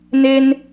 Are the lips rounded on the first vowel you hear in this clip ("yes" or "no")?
no